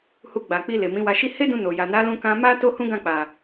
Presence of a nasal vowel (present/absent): present